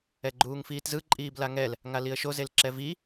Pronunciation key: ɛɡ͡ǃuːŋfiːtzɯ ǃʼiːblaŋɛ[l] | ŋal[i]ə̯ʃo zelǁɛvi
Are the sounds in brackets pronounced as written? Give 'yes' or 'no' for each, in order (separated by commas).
yes, yes